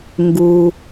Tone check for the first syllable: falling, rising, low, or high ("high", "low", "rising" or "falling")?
low